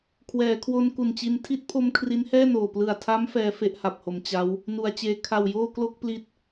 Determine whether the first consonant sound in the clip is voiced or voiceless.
voiceless